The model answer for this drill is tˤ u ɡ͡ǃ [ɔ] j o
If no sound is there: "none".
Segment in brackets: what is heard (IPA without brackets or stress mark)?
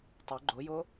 o